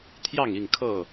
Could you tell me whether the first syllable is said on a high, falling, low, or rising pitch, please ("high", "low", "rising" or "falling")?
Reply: falling